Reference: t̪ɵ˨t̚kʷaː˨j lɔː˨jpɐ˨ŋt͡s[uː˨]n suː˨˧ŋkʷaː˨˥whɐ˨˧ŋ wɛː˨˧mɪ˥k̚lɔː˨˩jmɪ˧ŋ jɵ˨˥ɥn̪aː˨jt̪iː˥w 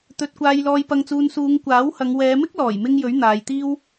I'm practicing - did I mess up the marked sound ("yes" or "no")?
no